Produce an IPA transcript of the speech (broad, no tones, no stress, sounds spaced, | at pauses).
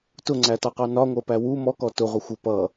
t ʊ ŋ͡ǀ æ t ɑ q ɑ n ɒ ŋʷ ɜ p æ w u m ɔ k ɔ t ʊ ʁʷ ʌ xʷ ə p ʌ